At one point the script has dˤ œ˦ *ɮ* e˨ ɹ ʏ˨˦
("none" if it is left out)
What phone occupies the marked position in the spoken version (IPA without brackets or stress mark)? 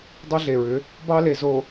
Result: ɮ